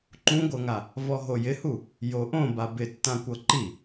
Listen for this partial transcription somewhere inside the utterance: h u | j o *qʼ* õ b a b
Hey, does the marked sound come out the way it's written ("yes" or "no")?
no